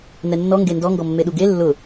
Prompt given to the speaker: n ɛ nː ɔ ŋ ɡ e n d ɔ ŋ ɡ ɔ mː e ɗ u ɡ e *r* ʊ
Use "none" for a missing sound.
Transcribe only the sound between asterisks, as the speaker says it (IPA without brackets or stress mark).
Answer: lː